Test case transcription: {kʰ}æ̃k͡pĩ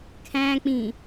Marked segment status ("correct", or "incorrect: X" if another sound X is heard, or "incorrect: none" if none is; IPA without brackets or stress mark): correct